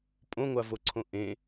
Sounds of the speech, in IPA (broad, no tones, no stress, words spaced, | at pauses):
pʼõŋʷavoǀʰõ ʔẽ